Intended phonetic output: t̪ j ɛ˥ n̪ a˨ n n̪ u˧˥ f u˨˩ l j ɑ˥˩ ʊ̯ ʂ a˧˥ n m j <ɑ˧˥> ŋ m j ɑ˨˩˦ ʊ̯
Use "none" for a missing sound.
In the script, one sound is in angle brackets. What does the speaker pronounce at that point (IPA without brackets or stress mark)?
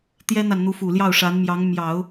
ɑ˧˥